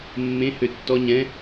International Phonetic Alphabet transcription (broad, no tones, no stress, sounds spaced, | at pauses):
mː ẽ h ø tː ɔ ɲ ɛ̃